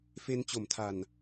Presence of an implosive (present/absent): absent